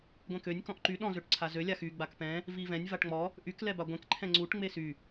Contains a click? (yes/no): yes